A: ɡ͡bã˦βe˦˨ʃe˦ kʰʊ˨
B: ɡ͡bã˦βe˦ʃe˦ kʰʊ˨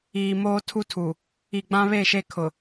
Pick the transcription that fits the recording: A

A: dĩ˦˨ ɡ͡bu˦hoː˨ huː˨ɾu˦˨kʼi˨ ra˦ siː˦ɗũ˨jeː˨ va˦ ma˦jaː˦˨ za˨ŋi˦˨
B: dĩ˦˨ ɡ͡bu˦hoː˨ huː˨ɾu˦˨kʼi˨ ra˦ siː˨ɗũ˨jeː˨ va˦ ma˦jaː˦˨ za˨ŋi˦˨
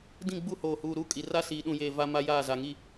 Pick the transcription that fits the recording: B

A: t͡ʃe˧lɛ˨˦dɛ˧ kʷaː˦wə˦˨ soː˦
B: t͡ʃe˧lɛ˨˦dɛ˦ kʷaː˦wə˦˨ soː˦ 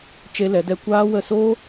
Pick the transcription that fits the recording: A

